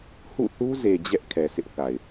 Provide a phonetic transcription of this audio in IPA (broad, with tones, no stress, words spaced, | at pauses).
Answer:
hṵ˦˨ θu˦ze˨ d͡ʑɛ˦ʔ kʰɛ˨sɪ˦ʔθa˨ɪ̯